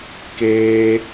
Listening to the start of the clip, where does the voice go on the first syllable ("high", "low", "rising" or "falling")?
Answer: high